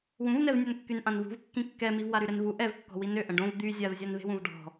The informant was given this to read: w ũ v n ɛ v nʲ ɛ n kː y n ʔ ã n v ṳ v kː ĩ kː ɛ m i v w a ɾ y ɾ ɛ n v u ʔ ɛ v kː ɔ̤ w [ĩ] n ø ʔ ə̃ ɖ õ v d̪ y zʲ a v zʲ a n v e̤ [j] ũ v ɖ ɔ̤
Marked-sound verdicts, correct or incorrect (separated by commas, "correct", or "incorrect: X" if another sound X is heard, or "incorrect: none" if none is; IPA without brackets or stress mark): incorrect: i, incorrect: w